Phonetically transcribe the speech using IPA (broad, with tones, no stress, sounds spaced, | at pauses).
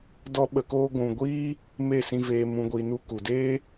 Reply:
d ɔ˦ ɓ ə˧ k oː˦ ɡʷ ũ˨ ɡʷ iː˦ | m e˦˨ s ĩ˧ v eː˧ m ũ˧ ɡʷ i˧ n u˦ k u˨ d eː˦